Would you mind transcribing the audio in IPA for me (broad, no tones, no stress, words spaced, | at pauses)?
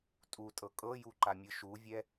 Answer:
tʼutʼɤ kʼɤjuǃamʲɯ ʃuvʲɛ